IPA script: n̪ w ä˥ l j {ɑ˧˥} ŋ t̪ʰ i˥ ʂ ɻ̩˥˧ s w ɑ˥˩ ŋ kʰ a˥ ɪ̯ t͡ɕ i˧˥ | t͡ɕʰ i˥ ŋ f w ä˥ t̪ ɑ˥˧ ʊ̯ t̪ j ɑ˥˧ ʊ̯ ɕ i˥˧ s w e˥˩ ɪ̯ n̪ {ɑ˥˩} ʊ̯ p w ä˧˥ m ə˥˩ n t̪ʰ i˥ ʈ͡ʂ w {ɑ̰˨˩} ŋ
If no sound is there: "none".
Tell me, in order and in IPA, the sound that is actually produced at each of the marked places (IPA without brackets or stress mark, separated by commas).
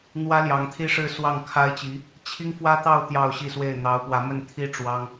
ɑ˧˥, ɑ˧˥, ɑ˥